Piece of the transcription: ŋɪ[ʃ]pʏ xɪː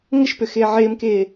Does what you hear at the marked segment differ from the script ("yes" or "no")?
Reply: no